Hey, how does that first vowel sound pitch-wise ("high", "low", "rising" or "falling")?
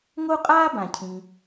high